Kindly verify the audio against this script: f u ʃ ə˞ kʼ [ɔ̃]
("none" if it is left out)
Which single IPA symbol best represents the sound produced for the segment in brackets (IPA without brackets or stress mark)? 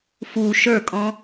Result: ɔ̃